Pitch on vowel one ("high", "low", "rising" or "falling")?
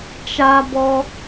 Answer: high